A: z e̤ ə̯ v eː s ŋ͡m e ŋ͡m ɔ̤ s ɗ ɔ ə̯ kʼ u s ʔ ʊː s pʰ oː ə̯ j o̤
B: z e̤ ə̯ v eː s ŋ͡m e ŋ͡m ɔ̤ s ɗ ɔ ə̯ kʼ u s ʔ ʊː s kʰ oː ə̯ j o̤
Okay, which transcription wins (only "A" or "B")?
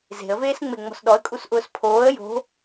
A